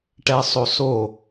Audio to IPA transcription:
ʈ ɛ sˤ o s o

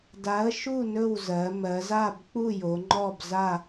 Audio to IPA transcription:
d a˨˥ ə̯ ʃ u˥˨ n ɵ˥˨ w z ɜ˩˧ m ɜ˩˧ z a˥˨ b k͡p u˥˨ j o˩˧ ŋ͡ǃ ɔ˥˨ b z a˥˨

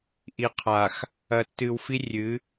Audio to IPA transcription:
ʔ i˨ qʰ a˨ x | ɐ˨ tː ɨ˨ w f i˦ rʲ ɨ˨˦

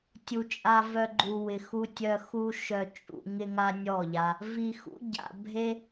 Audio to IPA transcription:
tʲ u˨ t͡ʃʼ a˧ v œ˧ ɡ͡ǃ u˨ w ɪ˨ x u˧ tʲ œ˧ x u˦ ʃ œ˧ t͡ʃʼ ṵ˧ ŋ ɪ˦ ŋ a˦ nʲ ɔ˦˨ ʎ a˧ | v i˨ x ṵ˦ ɟ a̰˨ bʱ e˦

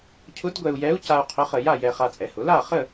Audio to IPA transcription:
cʰ ʊ˧˥ d ɡʷ ɛ˧ u̯ j ɛ˧˥ u̯ c a˧ u̯ qʰ ʊ˧˥ χ ə˧ j a˥˧ j ɛ˧ χ a˧ t͡sʼ ɛ˩˥ h ʊ˩˥ l a˥˧ χ ə˥˧

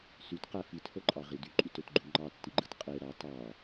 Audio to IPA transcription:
s y t q æ f i t h o ǃʼ ɑ ʁ i d y ǃʼ y t ø t ɡ͡ǃ u ŋ͡ǃ ɑ tː i ɡ͡ǃ ɯ t qʼ e ɾ ɑ t ɑ

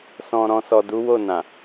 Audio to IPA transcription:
s ɔ̃˨ ɾ ɔ̃˨ s ɔ˨ d u˨˦ w o˦˨ n ã˨

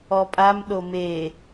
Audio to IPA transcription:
ɔ pʼ a m ɗ o m e

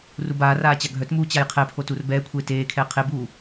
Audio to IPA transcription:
r u b aː r aː t͡ɕ a ɡʱ œ t m uː t͡ɕ a j qʰ ɛ pʰ o t u r b ɛː kʷʰ eː t eː kʰ ɛː qʰ e b uː

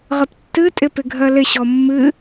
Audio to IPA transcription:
ʁ ə p tː ɨ tʼ ɪ p ɪ ɡʱ ɜ l ɪ ɕ ɔ mː ɨ

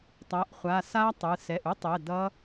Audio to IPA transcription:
tˤ a˩˧˩ ʔ χʷ a˩˧˩ s a˦˥ tˤ ɯ˩˧˩ s ɛ˩˧˩ ʔ u˦˥ tˤ ɛ˩˧˩ d ʌ˦˥

